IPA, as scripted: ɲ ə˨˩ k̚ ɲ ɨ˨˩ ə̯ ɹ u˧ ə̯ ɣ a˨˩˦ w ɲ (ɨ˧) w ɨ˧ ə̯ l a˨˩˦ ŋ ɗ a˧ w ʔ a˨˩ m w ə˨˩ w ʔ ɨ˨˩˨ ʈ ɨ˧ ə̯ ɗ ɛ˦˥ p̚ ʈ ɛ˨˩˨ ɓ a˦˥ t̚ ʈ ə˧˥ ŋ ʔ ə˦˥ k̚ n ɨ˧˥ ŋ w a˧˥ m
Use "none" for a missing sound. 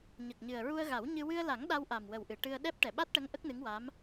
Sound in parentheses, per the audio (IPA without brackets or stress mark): ɨ˧